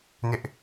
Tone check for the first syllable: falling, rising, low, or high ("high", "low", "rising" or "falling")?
high